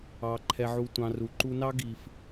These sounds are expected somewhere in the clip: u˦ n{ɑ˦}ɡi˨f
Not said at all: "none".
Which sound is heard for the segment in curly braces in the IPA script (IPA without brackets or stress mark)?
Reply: ɑ˦